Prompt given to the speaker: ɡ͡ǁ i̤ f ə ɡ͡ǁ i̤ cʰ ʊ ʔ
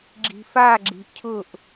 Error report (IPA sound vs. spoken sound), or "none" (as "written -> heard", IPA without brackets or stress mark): ə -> a